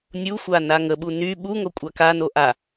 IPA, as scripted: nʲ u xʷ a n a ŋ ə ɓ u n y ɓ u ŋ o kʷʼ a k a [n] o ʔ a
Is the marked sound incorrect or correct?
correct